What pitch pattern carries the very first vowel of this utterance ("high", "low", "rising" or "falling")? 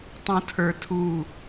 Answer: low